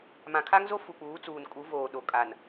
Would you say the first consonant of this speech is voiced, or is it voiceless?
voiced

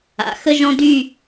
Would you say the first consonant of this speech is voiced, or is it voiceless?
voiceless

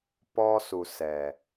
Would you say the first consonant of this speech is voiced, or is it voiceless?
voiceless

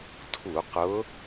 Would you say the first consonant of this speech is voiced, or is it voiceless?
voiceless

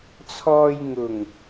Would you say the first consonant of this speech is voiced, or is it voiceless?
voiceless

